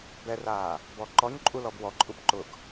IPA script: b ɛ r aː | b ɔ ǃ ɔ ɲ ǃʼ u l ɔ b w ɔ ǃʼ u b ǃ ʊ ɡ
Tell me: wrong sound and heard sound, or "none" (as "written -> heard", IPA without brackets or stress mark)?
none